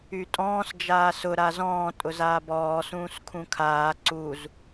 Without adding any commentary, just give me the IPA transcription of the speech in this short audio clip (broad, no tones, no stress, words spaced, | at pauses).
ytʼɔ̃ːs d͡ʒaːsʊ ɾazɔ̃ː tʼʊzaːbɔː sũːskʰũkʰaː ǀuz